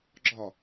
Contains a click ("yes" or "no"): yes